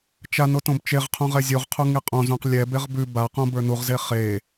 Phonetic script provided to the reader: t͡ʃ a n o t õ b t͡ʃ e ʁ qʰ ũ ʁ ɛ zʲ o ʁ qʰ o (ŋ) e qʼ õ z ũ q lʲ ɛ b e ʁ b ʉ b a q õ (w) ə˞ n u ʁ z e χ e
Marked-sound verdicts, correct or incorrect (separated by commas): correct, incorrect